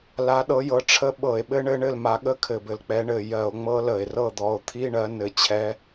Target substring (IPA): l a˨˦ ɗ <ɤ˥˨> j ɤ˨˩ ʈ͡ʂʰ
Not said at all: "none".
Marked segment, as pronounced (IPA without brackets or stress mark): ɤ˨˦